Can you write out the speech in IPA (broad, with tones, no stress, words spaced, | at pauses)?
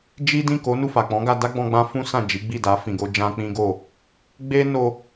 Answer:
d͡ʒi˦ dĩ˦˨ko˨˦nu˦˨ fa˨k͡pɔ̃˨˦ɡa˧ da˦ɡ͡bɔ̃˧ ɡ͡bã˦fũ˦sã˦˨d͡ʒi˨˦ ɡ͡bi˦˨da˨˦ fĩ˧ɡo˦d͡ʒã˦ k͡pĩ˦ɡo˦˨ | ɡ͡be˦ no˧